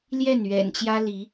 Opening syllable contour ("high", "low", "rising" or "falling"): falling